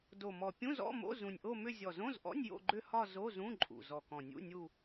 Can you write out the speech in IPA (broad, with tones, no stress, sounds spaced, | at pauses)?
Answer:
d o˨˩ m ɔ˨˩ pʲ ũ˧˥˧ z ɔ̰˧˥˧ m o̰˧˥˧ z ũ˨˩ nʲ ʔ o˦˨ m ʏ˦˨ zʲ ɔ˨˩ z õ˧˥˧ z ʔ ɔ̰˧˥˧ nʲ j o̰˦˨ ɡ͡ǃ ʏ˦˨ h ɒ˦˨ z o˧˥˧ z ũ˧˥˧ ǃʼ ṵ˨˩ z ɔ˨˩ k ɔ̃˨˩ nʲ ṵ˧˥˧ nʲ u˦˨